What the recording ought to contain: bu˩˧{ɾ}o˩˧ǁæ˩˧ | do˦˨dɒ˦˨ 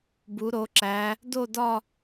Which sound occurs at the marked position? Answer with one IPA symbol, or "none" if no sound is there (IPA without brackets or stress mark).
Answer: ɾ